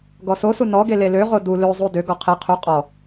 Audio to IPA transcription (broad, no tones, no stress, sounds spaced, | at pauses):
ɡ ɔ s o s u n ɔ ɡ e l e l ø ʁ o d u l ø zˤ u d ø ɡ ɔ qʰ e qʰ u qʼ ɔ